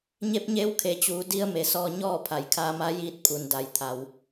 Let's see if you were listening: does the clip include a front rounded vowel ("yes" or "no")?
no